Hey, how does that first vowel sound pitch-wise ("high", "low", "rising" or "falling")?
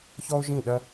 high